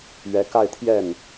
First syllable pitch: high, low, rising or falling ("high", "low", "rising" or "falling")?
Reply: rising